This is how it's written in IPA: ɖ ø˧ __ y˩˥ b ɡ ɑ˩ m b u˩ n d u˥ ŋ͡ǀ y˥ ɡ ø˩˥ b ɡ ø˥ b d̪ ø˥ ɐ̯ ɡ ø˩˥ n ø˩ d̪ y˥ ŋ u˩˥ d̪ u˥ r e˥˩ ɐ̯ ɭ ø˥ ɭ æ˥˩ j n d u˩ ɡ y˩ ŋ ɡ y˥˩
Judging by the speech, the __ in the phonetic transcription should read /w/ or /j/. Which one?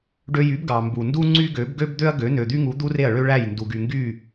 j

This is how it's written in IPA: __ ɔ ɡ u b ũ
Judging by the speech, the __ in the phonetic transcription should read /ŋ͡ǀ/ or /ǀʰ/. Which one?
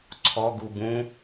ǀʰ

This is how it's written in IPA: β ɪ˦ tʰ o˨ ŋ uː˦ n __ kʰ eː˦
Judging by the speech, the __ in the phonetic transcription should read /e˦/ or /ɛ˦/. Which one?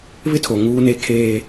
e˦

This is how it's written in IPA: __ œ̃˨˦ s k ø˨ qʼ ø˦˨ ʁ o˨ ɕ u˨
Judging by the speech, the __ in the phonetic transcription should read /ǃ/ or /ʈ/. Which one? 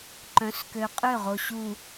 ǃ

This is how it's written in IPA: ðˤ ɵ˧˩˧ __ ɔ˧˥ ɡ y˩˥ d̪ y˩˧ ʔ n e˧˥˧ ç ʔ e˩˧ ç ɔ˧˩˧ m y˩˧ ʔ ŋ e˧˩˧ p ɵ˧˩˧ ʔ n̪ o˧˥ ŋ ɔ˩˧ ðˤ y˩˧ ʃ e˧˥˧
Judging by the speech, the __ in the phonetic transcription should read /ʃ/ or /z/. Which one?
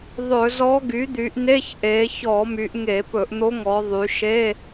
z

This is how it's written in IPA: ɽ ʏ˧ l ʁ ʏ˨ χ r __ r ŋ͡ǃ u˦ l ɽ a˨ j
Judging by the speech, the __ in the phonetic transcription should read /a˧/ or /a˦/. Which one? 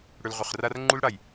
a˦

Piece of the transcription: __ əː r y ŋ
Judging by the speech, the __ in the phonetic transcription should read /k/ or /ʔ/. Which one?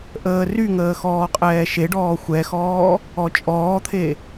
ʔ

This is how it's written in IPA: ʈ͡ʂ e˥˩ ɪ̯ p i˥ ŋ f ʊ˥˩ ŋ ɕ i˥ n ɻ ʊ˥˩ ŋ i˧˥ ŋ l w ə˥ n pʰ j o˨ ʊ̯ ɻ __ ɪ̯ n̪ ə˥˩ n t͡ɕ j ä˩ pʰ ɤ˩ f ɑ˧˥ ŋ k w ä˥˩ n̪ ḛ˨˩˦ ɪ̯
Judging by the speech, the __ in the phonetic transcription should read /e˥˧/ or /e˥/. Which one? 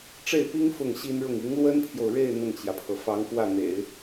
e˥˧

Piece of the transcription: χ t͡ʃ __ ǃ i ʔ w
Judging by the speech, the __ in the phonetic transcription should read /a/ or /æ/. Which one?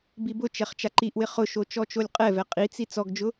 a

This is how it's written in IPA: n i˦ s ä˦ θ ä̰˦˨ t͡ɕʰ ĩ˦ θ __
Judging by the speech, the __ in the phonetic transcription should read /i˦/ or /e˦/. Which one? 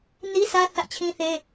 e˦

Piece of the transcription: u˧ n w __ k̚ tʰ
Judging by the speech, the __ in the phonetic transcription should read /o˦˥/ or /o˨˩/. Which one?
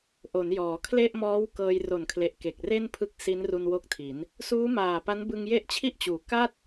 o˦˥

